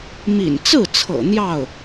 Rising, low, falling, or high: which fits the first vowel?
low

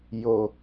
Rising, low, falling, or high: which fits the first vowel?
low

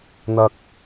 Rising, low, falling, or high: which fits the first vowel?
high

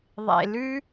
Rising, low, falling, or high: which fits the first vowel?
low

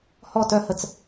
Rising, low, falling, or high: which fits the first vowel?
falling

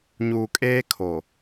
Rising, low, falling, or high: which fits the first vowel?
low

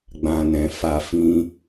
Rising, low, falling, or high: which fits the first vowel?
low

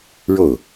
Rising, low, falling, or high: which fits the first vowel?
falling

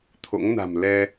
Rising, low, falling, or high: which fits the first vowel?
rising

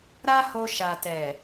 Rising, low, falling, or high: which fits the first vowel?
high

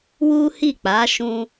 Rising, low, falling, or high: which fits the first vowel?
high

